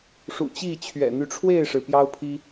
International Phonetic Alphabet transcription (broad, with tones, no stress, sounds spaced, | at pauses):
ʂ ṵ˨˩ t͡ɕ i˥˨ t͡ɕʰ ɥ ɛ̰˨˩ n̪ y˨˦ ʈ͡ʂʰ w e˥˨ ɪ̯ ʂ ɻ̩˩ p j ɑ˦ ʊ̯ pʰ i˦